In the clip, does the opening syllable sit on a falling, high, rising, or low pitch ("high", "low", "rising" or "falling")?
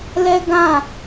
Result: high